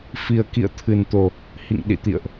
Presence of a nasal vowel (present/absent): absent